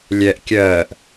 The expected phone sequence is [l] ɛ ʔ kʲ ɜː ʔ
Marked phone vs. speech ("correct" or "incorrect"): incorrect